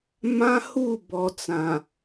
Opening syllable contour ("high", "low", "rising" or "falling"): high